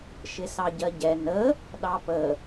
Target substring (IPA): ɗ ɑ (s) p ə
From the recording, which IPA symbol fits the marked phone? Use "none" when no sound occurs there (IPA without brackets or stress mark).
none